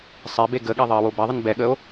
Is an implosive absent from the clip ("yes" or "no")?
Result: no